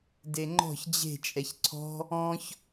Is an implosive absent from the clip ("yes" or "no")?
yes